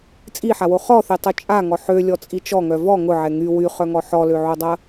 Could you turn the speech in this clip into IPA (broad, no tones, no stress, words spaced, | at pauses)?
t͡sʼiħawo χɔθetˤo t͡ʃʼaŋɔ ħølʲɔt͡sʼi t͡ʃɔŋœ vɔ ŋʊʕɛ ŋy wyχœŋɔ ħɔløʕodˤɐ